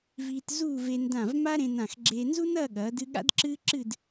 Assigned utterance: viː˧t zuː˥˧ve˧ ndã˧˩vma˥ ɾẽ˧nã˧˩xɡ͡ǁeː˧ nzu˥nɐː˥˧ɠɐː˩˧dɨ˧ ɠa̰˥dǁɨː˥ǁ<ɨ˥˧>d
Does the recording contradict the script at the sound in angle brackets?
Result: no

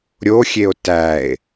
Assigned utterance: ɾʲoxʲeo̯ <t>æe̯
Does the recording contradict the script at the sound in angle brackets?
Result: no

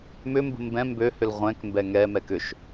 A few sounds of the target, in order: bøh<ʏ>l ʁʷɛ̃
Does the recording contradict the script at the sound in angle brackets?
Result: no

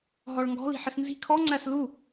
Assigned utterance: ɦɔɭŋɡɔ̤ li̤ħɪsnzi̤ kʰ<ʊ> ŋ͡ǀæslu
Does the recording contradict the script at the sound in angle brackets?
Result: yes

